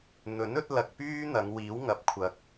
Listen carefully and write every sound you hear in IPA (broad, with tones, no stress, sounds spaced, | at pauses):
n̪ ɵ˨˥ n ɵ˨˥ t̚ l ɐ˧ k̚ p yː˥ n̪ ɐ˨˧ ŋ w iː˨˥ w ŋ ɐ˨ p̚ kʷʰ ɐ˨˥ k̚